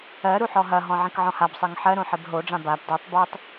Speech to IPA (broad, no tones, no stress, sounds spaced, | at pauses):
ɜ ɾ u ħ ɔ ɦ ɐ ɦ ɔ̃ ʕ ĩ k ʕ ɔ̃ h a b sˤ ɜ ŋ ħ ɜ ɾ õ ħ i b ɦ o ɖ͡ʐ ã b a b d ɜ tˤ b o tˤ